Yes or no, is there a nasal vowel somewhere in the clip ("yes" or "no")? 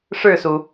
no